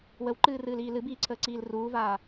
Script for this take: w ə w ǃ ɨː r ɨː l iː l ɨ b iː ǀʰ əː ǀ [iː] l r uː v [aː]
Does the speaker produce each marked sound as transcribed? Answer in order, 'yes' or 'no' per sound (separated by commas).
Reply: yes, yes